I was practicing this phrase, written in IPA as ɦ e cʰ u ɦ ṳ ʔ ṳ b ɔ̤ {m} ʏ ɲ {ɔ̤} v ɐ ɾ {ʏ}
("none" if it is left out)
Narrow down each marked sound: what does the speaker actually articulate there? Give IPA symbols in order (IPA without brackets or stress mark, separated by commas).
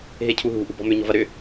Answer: m, ɔ̤, ʏ